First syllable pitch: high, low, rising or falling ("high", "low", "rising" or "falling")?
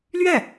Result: falling